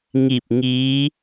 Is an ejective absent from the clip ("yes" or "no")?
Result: yes